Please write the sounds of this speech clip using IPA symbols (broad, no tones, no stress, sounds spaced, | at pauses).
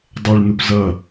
dˤ ə ɭ n̪ u p z ʌ